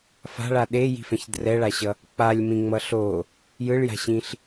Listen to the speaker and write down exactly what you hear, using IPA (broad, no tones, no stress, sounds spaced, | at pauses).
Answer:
f a̤ ɭ a ɗ e j i̤ f ɛ̃ ç d r ɛ ɭ a ɕ ʌ | k͡p a lʲ m ĩ ŋ͡m ʌ ɬ o | j ɯ ɭ j a̤ ɕ ĩ ɬ